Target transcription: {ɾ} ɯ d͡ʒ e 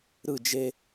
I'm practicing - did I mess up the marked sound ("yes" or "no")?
no